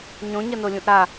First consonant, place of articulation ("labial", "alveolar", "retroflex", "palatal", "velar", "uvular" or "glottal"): palatal